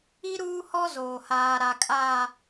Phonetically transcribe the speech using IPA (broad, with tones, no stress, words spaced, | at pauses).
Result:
i˦ ɾuː˦hɔ˦ zoː˨haː˨ɾa˨ kʼaː˨